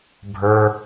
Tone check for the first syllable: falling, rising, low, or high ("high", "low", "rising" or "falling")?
low